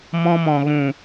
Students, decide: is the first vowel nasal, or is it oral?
nasal